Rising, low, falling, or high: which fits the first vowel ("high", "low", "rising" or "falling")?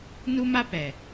high